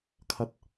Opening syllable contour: high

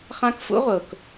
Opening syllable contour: high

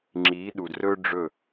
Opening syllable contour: rising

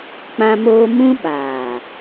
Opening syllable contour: high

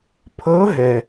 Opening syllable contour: rising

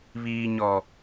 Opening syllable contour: low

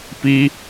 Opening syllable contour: high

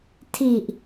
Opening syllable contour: low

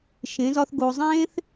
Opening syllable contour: rising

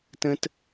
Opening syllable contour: high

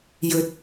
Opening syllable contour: rising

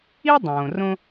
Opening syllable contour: high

